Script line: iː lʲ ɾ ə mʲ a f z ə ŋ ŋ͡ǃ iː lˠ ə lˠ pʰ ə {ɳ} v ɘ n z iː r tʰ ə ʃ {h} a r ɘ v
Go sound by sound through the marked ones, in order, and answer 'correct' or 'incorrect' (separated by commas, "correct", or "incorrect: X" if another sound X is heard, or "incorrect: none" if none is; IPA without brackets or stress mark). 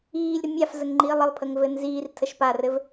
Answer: incorrect: ŋ, incorrect: p